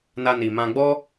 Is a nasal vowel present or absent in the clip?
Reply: present